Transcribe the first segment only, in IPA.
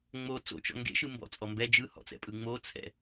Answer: ŋ͡m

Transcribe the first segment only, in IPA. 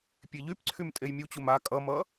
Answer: pʲ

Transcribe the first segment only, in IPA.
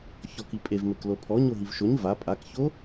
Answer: ç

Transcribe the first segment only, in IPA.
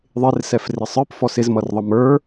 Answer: ðˤ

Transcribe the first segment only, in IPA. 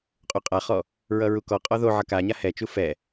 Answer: qʼ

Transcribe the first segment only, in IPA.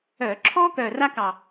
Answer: œ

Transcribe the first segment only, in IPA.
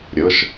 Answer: ɾʲ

